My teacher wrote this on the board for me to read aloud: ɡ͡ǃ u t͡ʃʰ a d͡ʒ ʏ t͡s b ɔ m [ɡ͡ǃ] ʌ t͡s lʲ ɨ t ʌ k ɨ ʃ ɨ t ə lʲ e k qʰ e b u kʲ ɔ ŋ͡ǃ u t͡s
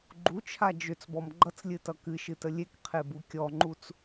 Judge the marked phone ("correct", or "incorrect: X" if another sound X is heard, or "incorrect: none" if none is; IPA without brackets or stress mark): correct